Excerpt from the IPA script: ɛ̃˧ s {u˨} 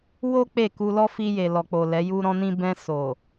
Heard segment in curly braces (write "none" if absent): o˨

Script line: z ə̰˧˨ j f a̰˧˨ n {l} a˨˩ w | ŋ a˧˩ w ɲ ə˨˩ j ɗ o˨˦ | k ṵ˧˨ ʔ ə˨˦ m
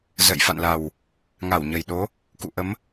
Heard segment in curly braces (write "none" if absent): l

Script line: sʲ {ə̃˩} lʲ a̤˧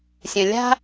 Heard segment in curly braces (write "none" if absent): ə̃˩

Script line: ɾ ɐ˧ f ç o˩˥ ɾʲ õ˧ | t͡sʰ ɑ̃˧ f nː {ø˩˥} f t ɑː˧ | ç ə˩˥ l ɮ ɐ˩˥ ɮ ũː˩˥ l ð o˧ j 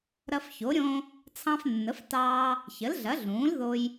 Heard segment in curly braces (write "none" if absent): ə˩˥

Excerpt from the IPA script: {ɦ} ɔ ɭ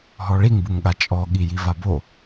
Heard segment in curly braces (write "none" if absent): ɦ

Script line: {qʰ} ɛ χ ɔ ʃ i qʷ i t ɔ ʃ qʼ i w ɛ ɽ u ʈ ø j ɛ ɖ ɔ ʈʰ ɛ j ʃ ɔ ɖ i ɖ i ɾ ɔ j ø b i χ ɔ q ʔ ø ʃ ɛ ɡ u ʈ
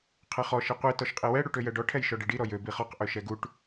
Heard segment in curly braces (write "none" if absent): qʰ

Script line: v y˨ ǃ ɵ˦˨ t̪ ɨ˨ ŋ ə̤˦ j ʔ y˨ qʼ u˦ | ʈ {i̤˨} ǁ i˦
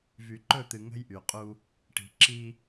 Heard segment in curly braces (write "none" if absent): i̤˨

